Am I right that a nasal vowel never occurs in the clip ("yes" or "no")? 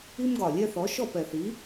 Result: yes